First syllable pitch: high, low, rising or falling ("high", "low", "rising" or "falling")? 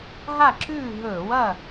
falling